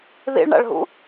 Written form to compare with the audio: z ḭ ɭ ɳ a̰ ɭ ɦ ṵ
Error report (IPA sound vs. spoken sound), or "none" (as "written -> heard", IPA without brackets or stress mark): z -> ð